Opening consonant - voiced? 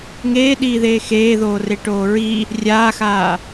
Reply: yes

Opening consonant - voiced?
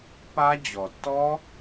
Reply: no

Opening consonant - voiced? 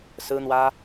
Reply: no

